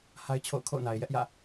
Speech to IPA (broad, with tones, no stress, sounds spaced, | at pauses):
h a˦ ɪ̯ t͡ɕʰ o̰˦˨ ʊ̯ kʰ o̰˦˨ ʊ̯ n a˨ ɪ̯ j ɛ˦ ʔ j ä̰˦˨